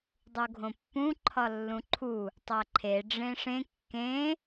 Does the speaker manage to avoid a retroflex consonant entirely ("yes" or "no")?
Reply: no